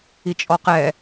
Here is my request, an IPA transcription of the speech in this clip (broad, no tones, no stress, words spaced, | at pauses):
it͡ʃʼɔqɛ